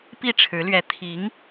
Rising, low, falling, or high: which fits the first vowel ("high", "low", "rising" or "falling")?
falling